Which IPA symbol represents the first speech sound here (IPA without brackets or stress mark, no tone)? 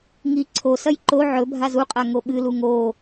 ŋ